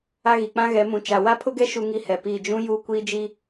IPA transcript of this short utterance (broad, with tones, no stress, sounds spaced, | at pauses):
a˦ ɣ i˨ k͡p ã˦ ɣ ɛ˨˦ m ũ˨ t͡ʃ a˨ w a˦ pʰ ʊ˦ ɡ ɛ˦ ʃ u˦ ŋ i˦ h ɛ˨ p iː˦˨ d͡ʒ ũ˦ j uː˦ kʷ iː˦ d͡ʒ i˦